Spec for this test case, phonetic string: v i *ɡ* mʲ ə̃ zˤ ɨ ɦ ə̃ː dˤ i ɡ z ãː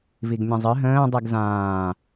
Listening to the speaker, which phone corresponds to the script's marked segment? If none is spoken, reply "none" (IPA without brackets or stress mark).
ɡ